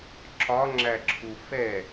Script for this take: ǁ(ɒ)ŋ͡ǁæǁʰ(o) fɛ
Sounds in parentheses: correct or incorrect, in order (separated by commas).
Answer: correct, incorrect